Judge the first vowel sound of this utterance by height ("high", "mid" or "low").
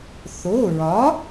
mid